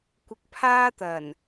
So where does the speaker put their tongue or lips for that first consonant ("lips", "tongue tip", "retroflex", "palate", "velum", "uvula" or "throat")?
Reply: velum